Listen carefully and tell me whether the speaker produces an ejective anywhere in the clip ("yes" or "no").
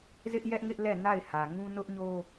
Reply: no